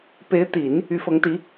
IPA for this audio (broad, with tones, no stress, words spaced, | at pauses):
pe˧˥ɪ̯t̪i˨˩˦n | y˧˥fɤ˧˥ŋt̪i˧˥